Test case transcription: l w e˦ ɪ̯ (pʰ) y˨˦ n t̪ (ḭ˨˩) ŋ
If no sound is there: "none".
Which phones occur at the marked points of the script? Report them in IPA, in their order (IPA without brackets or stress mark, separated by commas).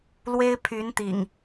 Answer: pʰ, ḭ˨˩